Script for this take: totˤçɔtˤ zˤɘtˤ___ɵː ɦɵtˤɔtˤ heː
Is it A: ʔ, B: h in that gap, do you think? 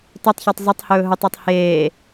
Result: B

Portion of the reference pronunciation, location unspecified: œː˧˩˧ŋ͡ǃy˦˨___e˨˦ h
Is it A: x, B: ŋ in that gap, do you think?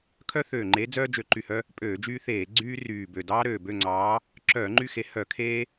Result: A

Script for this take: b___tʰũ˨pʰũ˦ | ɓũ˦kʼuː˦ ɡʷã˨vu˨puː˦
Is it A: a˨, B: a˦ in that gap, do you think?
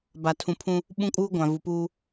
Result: A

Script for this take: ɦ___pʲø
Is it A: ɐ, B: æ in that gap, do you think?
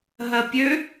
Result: A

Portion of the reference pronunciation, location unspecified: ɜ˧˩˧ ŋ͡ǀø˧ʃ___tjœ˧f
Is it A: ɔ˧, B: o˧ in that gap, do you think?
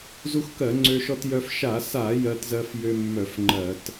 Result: A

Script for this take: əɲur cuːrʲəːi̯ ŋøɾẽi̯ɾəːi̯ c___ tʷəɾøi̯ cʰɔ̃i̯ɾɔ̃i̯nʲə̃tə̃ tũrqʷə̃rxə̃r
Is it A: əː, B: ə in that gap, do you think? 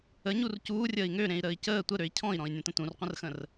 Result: A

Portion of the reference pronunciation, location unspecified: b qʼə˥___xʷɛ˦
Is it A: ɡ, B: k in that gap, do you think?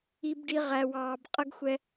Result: A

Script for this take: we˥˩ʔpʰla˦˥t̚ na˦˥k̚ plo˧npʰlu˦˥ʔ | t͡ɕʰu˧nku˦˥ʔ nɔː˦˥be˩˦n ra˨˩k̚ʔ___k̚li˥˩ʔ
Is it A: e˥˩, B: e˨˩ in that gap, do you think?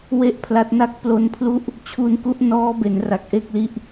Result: A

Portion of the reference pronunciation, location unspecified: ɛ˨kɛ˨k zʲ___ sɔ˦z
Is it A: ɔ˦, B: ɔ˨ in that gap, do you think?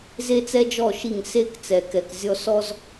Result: A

